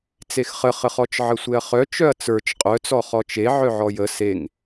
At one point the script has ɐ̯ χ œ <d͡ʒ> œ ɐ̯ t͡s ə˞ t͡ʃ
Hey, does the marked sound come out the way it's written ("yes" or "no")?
no